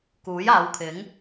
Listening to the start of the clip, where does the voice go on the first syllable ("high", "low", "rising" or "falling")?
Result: rising